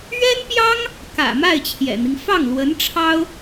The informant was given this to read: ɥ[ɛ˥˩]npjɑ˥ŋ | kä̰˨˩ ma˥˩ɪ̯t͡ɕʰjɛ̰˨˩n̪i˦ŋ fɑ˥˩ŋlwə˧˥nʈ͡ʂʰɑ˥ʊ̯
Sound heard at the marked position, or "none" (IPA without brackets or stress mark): ɛ˥